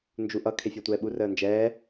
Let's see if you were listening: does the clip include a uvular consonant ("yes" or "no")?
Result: no